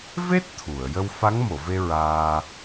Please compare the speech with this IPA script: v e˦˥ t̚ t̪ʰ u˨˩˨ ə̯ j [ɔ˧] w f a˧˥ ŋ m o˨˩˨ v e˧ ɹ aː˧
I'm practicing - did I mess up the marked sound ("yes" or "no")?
yes